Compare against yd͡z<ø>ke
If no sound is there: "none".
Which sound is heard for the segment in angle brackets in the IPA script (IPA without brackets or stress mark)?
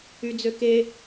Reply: ø